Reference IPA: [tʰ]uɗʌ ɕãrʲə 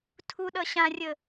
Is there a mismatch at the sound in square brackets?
no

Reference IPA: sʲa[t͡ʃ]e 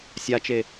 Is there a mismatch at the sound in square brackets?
no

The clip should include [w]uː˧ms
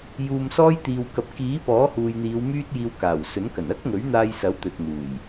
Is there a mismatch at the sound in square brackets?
yes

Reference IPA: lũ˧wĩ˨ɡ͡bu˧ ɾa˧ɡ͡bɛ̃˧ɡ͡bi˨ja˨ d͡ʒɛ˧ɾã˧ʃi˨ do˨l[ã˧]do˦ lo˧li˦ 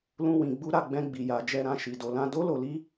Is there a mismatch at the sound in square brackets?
no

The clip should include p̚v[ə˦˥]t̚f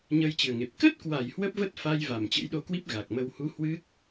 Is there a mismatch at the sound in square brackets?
no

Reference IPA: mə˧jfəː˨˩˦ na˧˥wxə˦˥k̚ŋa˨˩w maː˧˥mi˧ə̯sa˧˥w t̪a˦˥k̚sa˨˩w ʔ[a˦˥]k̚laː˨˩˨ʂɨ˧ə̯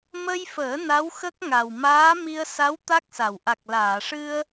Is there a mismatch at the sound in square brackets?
yes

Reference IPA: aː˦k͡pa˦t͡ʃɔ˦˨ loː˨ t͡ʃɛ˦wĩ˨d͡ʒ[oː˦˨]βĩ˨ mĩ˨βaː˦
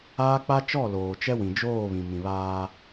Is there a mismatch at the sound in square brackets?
no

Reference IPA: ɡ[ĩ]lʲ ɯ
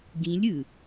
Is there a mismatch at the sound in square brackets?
no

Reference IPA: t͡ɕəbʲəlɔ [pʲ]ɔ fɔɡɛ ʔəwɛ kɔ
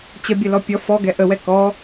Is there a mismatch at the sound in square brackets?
no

